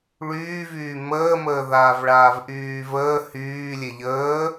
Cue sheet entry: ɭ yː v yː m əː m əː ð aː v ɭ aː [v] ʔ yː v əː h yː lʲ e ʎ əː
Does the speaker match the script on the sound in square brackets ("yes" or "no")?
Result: yes